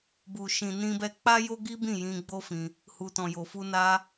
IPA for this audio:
bu˨ʃĩ˨ nĩ˧bɛ˧ k͡pa˦jo˦ɡi˦ bĩ˦˨jĩ˧ɡ͡bo˦fĩ˧ | hu˨tɔ̃˨jo˨fu˧ na˧

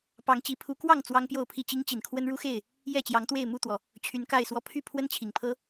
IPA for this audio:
pɑ˨˦ŋt͡ɕi˨˦ pʰu˨˦kwɑ˥˨ŋ t͡swɑ˦ŋpjo˥˨ʊ̯pʰi˥˨ t͡ɕi˦ŋt͡ɕi˨˩nkʰwə˦n ɻu˦xe˥˨ɪ̯ | jɛ˥˨t͡ɕjɑ˨˦ŋt̪we˥˨ɪ̯ mu˥˨t̪wɔ˩ | t͡ɕʰy˨˦nka˥˨ɪ̯swɔ˥˨ pʰy˥˨ pʰwə˦nt͡ɕʰi˨˩ŋpʰɤ˦

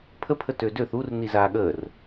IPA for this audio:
pʰəpʰə tødøθ ur nizaːɠəːr

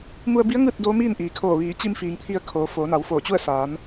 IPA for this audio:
mu˧ə̯bi˧˥ə̯ ŋɯː˥˨t̚ doː˧˥miː˥˨nʔiː˩kʰoː˧˩ ʋiː˩˧t͡ɕi˧mfiː˩ŋ t̪ʰi˧ə̯kʰoː˩˧ foː˩˧na˩˧w foː˧˩t͡ɕu˥˨ə̯ saː˩˧n

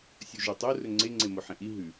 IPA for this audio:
sʲuʒotˤo rɵŋ͡ǀe ŋ͡ǀemoħẽʔi ɦʉ

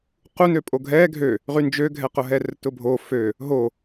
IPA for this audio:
qunøpʼo ɡʱɛ ɡʱø | ʁynd͡ʒøɡʱɛqʊ ɦɛrtʊbʱo fø | ɦo

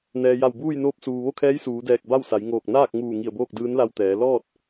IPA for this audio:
nɛː˩ja˧˩wbuː˥˨jnoː˧˥p̚ suː˩ʋo˥˨kʰɛː˧˥j suː˩˧dɛː˧˩k̚ ba˥˨wsa˩˧jŋoː˧˩k̚ naː˥˨k̚ŋuː˧˩ ŋi˧˩ə̯boː˥˨k̚ dɯː˧˥nla˧wt̪ɛː˩˧ lɔː˥˨t̚

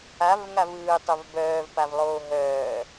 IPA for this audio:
avŋavɯːtˤɵv bœːvpavlˠoː ɦœː

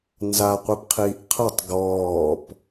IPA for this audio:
nzaqʷipqʰiːʔ qʰɐtˤ ɡɔːp

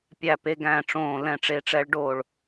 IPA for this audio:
pʲæ˧˩pe˨˦ɡæ̃ː˧˩ ʈ͡ʂõː˧˩ lɛ̃˧˩ʈ͡ʂe˨˦ʈ͡ʂɛ˨˦ɭɖo˧˩ɭ

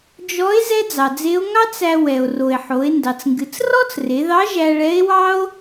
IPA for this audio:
d͡ʒɔ˧˥e̯ zɛ˥d͡zɑ˩d͡ze˧˥o̯ ŋɑ˥t͡s æ˧ wɛ˩o̯ro˩e̯ħo˩˧e̯ ndɑ˩t͡sŋɡɨ˩˧t͡s rɔ˥t͡sre˩˧ðɑ˧˥ ʒæ˧ɭɛ˧˥e̯ wɑ˥o̯

